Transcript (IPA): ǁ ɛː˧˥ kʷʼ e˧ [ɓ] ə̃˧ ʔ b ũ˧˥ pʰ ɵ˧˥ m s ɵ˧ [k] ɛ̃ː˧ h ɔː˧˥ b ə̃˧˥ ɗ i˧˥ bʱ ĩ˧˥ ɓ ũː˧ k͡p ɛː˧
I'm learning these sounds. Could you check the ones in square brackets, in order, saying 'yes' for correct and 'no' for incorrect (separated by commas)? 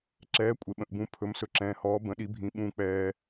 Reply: yes, no